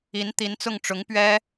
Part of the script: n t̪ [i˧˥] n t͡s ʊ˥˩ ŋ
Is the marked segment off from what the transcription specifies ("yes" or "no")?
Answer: no